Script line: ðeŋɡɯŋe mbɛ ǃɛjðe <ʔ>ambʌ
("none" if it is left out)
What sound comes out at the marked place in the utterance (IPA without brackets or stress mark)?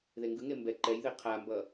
qʰ